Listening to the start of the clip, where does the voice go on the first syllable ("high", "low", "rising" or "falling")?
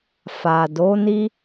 low